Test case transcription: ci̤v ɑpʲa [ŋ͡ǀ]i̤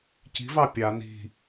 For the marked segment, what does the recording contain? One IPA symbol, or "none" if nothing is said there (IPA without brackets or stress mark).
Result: n